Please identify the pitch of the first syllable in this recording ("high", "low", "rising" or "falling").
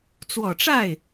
low